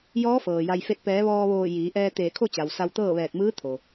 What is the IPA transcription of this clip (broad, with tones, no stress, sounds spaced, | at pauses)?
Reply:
j ɔː˧˥ f ɤː˩ j a˩ j f e˧˩ t̚ p ɛː˩˧ ʋ ɔː˧ ʋ oː˧˩ j iː˩˧ ʔ ɛː˧ t̪ eː˧˩ kʰ o˥˨ t͡ɕ a˩ w s a˧ w t̪ ɤː˥˨ ʋ ɛː˧˩ k̚ m ɯː˧˥ t̪ʰ o˩